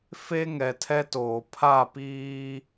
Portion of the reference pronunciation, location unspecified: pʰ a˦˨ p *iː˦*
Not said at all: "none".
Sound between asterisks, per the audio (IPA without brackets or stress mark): iː˦